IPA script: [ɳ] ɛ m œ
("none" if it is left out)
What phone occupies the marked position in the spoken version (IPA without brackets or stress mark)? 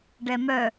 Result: ɖ